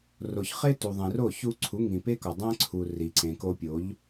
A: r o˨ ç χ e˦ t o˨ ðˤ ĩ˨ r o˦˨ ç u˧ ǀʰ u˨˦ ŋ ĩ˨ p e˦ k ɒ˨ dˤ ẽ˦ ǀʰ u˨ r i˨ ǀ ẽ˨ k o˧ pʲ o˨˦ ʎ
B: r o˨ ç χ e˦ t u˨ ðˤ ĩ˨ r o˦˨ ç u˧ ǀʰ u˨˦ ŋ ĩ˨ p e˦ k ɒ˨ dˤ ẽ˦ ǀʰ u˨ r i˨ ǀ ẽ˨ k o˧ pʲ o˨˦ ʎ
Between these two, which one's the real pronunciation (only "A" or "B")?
B